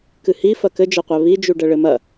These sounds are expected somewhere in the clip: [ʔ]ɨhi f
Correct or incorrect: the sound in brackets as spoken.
incorrect: k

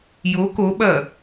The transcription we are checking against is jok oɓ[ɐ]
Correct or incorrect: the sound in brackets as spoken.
correct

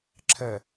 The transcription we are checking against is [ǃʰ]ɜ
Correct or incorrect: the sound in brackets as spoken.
incorrect: ǁʰ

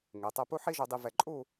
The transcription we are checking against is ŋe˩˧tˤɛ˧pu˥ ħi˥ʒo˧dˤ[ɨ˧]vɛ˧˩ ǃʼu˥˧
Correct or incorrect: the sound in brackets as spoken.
incorrect: i˧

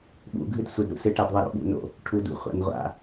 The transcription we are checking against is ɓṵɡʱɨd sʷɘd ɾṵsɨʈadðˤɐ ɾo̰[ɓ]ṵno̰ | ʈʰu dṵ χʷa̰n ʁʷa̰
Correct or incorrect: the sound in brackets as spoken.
correct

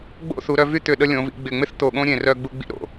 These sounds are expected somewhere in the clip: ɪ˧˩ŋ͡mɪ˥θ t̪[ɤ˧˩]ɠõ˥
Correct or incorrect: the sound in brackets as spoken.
incorrect: o˧˩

